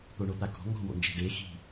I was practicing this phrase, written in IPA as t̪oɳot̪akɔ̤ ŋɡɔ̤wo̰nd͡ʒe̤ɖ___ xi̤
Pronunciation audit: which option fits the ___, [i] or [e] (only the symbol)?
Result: e